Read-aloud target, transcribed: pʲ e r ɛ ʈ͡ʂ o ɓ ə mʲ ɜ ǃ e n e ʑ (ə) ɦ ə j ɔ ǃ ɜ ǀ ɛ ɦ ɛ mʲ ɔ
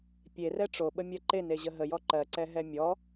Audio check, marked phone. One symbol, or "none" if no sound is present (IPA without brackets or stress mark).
ə